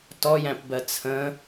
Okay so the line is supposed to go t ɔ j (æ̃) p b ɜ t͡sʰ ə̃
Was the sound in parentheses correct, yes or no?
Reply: yes